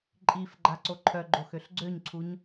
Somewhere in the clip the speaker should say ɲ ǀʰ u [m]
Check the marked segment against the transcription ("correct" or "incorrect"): incorrect